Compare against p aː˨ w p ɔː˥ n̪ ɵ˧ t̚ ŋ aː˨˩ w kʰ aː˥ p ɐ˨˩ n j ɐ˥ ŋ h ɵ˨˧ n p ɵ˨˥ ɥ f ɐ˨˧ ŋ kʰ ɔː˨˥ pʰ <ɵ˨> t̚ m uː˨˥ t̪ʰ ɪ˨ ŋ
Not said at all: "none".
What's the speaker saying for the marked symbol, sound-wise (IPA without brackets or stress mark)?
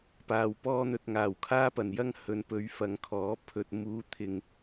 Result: ɵ˨